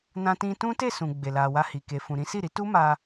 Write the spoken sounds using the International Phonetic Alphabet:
n ã˧ t ĩ˧ t ũ˦ t e˦˨ s ũ˨ ɡ͡b e˨ l a˨ w a˧ h i˨ k e˨ f ũ˨ ɾ ĩ˨˦ s i˦˨ ɾ i˨˦ t u˦ m a˧

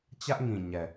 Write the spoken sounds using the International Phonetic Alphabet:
t͡ɕ ä˦ ʔ ŋ ĩ˨ ɲ ɛ˨

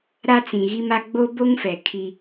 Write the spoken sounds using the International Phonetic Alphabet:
ɾ a˦ t͡s ĩ˨ ɣ i˦ m a˦ ɡ͡b o˦ b o˦ ŋ f ɛ˨ kʰ i˦

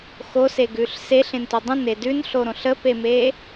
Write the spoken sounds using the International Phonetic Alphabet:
x o s e ɡ ʉ ɬ s e ɬ ẽ n t o dˤ ə̃ n e d ʉ n ɬ o ɾ õ ɬ ə p e m e

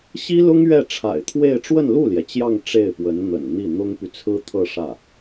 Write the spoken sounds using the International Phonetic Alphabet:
ɕ i˥ l ʊ˥ ŋ ɥ ɛ˥˩ ʈ͡ʂʰ a̰˨˩ ɪ̯ t̪ʰ w e˥˧ ɪ̯ ʈ͡ʂ w ə˥˧ n l u˥˩ l j ɛ˩ t͡ɕ j ɑ˥˧ ŋ ʈ͡ʂ e˥˩ ɪ̯ p w ə˧˥ n n̪ ə̰˨˩ n n̪ i˥˩ n̪ ʊ˥ ŋ p y˨ t͡sʰ ɹ̩˥ t̪ʰ ɤ˥˧ ʂ ä˥˩

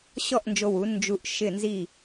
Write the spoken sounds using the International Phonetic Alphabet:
ɕ ɔ˥˨ ʔ n d͡ʒ o˧ w u˩˥ n d͡ʒ u˧˩ ʔ ʃ ɪ˧˩ n z i˧˩

